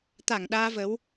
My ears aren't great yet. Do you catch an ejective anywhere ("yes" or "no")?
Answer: no